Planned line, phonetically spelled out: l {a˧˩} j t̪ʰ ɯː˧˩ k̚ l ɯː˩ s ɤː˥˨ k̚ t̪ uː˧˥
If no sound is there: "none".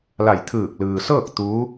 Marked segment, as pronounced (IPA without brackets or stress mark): a˧˩